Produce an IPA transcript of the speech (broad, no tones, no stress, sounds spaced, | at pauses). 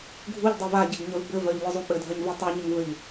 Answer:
ɡʱ u ʎ dˤ i v a ɟ e ɡ ɲ œ v b ɘ v œ ʎ lʲ u zˤ u ɓ ɘ dʱ œ ɲ v i tˤ e ɲ ɘ ŋ v ɘ ʎ